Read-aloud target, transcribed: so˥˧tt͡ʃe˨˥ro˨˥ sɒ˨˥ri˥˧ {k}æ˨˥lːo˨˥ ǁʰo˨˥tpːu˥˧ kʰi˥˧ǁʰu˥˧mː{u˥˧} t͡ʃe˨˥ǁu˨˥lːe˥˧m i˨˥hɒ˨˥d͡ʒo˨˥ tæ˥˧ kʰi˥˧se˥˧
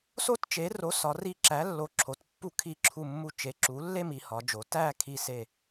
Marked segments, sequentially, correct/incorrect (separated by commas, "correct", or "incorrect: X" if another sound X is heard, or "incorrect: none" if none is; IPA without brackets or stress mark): incorrect: ǁ, correct